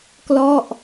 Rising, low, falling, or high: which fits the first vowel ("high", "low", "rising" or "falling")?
falling